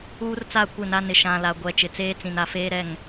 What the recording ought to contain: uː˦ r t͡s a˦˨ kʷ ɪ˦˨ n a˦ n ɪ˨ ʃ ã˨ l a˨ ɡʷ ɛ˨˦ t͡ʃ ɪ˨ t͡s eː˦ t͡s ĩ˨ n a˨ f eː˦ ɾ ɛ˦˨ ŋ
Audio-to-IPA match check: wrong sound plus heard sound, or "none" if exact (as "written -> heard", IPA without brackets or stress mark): none